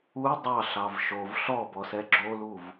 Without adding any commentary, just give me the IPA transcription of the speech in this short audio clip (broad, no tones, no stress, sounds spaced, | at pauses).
u dˤ ɑ ɬ ɑ v ʃ o v ɬ ɔ b ɔ s ɛ ɡ͡ǁ o l u v